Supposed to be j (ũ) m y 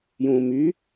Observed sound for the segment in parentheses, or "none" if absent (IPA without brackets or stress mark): ũ